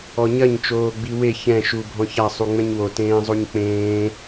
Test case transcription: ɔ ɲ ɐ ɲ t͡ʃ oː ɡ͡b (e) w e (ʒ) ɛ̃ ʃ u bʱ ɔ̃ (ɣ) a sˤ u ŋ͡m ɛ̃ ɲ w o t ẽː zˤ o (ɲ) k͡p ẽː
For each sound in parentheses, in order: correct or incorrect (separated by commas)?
incorrect, incorrect, incorrect, correct